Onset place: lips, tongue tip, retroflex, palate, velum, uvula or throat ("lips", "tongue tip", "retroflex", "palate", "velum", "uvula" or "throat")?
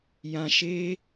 palate